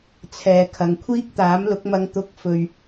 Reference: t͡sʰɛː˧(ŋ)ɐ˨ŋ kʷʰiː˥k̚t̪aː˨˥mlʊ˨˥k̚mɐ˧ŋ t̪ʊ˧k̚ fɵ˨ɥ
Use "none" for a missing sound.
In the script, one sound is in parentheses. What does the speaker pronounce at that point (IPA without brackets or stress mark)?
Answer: kʰ